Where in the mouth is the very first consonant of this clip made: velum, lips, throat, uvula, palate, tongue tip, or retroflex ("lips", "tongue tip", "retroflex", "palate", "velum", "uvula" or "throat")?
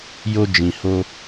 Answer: palate